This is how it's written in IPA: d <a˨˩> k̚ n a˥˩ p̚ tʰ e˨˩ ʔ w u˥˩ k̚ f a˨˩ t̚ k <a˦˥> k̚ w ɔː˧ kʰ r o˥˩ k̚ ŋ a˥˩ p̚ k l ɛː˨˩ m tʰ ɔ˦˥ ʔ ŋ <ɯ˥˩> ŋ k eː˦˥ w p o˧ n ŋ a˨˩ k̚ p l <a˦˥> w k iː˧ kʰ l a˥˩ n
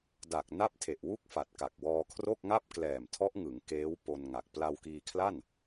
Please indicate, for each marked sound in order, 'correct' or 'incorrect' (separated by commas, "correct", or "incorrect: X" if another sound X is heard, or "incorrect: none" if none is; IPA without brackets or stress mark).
correct, incorrect: a˨˩, incorrect: ɯ˩˦, incorrect: a˧